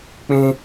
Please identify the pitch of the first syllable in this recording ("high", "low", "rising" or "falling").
high